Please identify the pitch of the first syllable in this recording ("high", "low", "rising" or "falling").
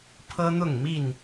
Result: high